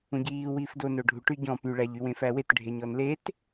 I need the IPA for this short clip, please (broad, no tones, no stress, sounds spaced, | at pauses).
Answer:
ũ ɟ iː w iː f d o n o ɖʱ u ʈ y ɟ ɔ̃ p y ɭ æ ʎ y w ẽ f æ w e t ɖʱ e ɲ ɔ n l e t